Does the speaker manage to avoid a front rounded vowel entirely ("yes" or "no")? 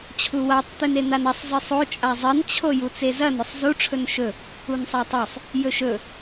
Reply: yes